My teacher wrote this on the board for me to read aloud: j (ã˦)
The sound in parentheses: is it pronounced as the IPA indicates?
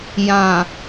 no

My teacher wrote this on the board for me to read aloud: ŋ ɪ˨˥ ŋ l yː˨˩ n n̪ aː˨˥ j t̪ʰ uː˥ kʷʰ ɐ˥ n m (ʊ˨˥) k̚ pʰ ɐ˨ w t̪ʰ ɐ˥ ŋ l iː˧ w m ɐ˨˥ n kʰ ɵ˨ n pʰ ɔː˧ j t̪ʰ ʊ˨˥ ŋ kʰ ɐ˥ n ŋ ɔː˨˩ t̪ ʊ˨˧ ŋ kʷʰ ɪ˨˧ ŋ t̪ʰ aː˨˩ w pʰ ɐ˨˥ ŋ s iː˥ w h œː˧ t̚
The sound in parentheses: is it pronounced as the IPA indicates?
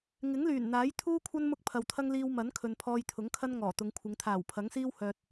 no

